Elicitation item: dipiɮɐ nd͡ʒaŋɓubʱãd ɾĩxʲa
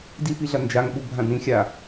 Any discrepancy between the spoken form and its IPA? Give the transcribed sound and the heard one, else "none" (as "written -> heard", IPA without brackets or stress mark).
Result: none